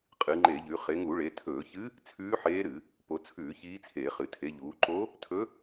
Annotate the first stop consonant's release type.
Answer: ejective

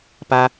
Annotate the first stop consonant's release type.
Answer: plain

